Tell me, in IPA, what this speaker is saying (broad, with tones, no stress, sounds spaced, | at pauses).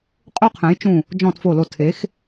qʼ o˥ qʰ ɛ̃˨˥ j t͡ʃ ũ˦˨ | d͡ʒ ɔ̃˦˨ t f o˦˨ l o˦˨ tʰ e˨˥ x